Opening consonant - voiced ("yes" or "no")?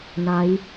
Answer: yes